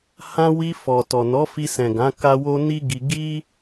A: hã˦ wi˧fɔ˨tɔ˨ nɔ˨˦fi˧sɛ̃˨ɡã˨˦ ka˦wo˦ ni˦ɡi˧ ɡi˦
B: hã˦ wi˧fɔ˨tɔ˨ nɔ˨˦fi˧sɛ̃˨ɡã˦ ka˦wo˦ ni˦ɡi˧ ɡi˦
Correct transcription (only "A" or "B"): A